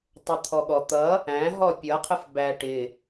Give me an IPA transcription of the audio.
tˤət̪ʰɔɠɔt̪ʌ | æ̃ ɦɔpʲʌ qʰəfbæ ʈɪ

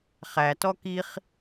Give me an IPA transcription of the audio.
χætɔ kiχ

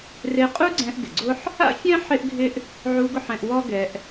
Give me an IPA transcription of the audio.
re˧qʼu˥ɡ͡ǀɛ̃˧ʔ ɡɪ˩ɡ͡ǀʊ˥ħ | a̰˥fʲɛ̃˥ ħɪ˥ʔɡʱɪ˥ʔ | ʕu˧ ɡʊ˥ħɛ̃˧ʔ wɔ˥ɡɛ˧ʔ

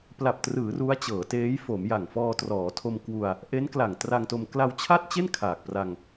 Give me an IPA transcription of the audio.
pla˨˩p̚trɯː˩˦ ru˦˥a̯t͡ɕɤː˩˦teː˦˥jfo˩˦m ja˨˩ŋfɔː˧trɔː˩˦ tʰo˧mkwu˧a̯ | ʔe˦˥nkla˨˩ŋ tra˧ŋto˧m kla˧wt͡ɕʰa˥˩t̚t͡ɕe˥˩n kʰaː˨˩k̚pra˧ŋ

